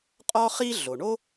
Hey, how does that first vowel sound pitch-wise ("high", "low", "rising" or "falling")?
high